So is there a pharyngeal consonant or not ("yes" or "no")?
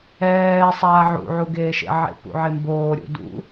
yes